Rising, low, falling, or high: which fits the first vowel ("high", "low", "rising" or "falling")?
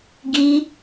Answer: high